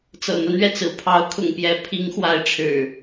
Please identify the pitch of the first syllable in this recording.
low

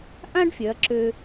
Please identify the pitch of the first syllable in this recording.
high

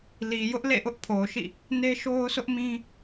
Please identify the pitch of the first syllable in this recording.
low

